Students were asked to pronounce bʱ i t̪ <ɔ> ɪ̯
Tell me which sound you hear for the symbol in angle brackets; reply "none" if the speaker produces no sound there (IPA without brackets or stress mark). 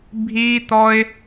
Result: ɔ